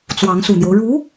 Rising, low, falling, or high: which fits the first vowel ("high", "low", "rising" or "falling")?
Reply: rising